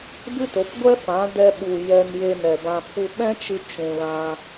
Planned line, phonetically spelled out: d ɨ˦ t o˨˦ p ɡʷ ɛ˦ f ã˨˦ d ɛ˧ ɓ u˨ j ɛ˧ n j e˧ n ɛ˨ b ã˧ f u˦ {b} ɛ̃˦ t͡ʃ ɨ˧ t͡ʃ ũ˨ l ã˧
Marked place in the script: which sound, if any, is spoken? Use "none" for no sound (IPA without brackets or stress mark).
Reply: ɓ